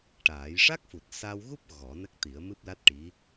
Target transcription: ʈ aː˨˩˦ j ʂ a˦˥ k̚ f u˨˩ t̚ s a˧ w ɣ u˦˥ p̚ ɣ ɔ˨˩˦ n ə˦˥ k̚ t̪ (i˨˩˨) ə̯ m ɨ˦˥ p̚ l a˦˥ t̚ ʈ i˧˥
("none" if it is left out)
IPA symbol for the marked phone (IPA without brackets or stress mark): i˨˩˦